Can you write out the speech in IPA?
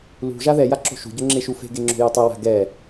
l ṳ ʒ a ð ɛ j a ǁ o̤ ʃ ṳ ɟ o ŋ͡ǁ e ʃ u f e̤ ɡ e ŋ͡ǁ o̤ j o tˤ ɛ w a̤ ɡ ɛ

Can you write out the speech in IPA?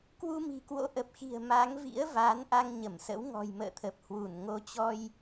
k w u˧ m i̤˨˩ k w o̰˧˥ ʔ ə˨˩ p̚ x i̤˨˩ ə̯ m a˨˦ ŋ v ḭ˧˥ ə̯ v aː˨˦ n ʔ a˧ ŋ ɲ ə˧˩ m s ə̰˧˥ w ŋ ɔ̤˨˩ j m ə̰ː˧˨ t̪ʰ ə˨˩ p̚ h w u˧˩ n ŋ o˨˦ t͡ɕ ɔ˧ j

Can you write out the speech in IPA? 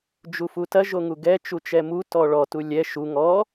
d͡ʒ u f u t ɐ ʒ o ŋ u ɡ ɛ t͡ʃ u t͡ʃ ɛ m u t ɔ ɭ ɔ t u lʲ ɛ ʃ u ŋ ɔ

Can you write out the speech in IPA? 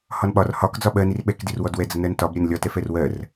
h ɒ n ɓ ɒ r h ɒ k d͡z ɒ ɓ ɜ n i r ɓ ɛ k d i r w ɔ d w ɛ d͡z ə n ɜ n t ɒ b ɾʲ ɜ n lʲ ɒ t ɛ f ɛ r w ɜ r

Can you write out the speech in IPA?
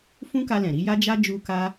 f ũ˦ k a˧ l ɛ̃˨ ɾ i˧ j a˦ d͡ʒ a˦ d͡ʒ u˦ k a˦

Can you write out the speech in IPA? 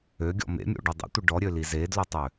ø ɡʲ ɔ̰ m ḛ mʲ o̰ ɖ i dˤ ḭ tʷ i ɖ ɔ ɾʲ ø l i z e d l o tˤ ø

